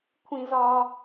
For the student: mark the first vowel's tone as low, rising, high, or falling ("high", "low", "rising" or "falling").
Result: high